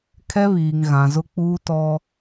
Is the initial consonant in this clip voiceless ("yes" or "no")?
yes